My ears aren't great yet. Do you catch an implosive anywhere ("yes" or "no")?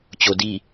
no